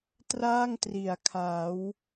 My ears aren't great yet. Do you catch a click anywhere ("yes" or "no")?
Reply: no